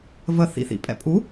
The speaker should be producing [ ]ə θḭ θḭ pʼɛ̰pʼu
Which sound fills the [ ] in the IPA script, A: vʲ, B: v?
B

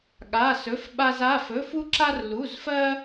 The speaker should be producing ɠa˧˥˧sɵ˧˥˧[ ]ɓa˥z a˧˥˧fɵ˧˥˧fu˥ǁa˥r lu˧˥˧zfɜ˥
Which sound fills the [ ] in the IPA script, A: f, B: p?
A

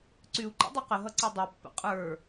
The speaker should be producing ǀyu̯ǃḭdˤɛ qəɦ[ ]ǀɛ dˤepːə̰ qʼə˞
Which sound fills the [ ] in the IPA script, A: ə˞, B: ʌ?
B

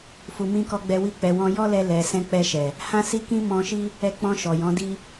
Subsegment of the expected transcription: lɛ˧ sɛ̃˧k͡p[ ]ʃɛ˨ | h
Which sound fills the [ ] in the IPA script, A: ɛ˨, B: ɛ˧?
B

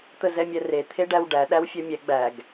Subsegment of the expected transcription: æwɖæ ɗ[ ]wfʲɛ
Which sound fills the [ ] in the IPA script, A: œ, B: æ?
B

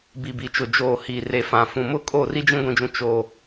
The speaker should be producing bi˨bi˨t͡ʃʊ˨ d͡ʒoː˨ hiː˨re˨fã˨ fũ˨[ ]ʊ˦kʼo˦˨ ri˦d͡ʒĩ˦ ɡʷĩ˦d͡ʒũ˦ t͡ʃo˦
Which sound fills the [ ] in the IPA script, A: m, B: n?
A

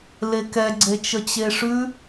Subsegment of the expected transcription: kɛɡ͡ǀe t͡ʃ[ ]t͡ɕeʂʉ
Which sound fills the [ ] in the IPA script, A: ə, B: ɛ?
A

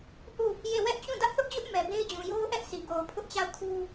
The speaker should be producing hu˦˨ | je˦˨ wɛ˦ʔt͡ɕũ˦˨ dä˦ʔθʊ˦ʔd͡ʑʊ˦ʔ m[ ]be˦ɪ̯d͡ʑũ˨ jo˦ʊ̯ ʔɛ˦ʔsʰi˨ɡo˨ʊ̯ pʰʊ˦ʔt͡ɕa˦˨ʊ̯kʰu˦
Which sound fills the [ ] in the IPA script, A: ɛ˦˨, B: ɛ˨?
B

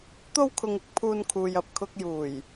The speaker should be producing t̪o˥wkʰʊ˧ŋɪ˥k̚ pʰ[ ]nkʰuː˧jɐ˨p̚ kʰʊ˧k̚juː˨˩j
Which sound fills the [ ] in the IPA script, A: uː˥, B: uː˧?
A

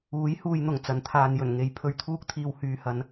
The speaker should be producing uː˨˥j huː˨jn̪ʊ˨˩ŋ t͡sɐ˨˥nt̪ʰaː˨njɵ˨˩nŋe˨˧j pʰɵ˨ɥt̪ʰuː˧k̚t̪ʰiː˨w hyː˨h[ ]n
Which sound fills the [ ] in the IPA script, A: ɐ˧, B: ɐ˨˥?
B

